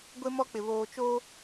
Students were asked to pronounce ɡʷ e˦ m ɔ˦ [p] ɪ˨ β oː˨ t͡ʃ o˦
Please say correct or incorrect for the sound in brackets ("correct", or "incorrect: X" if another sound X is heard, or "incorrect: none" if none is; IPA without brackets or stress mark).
incorrect: k͡p